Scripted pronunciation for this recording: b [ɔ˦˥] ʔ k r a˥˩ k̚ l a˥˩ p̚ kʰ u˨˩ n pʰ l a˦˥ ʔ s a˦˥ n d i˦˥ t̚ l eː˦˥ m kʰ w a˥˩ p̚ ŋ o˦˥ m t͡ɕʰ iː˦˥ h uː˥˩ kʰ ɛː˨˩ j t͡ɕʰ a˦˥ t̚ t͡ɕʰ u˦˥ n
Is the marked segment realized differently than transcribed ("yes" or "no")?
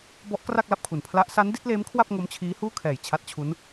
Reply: no